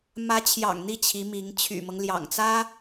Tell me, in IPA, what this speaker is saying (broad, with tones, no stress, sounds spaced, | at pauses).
m ä˧˥ t͡ɕʰ j ɑ̰˨˩ ŋ n̪ i˥˩ t͡ɕʰ i˧˥ m i˧˥ ŋ t͡ɕʰ y̰˨˩ m ɤ˦ ŋ l j ɑ̰˨˩ ŋ t͡s ä˥